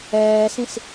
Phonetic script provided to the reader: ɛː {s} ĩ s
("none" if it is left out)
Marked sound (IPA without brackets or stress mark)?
s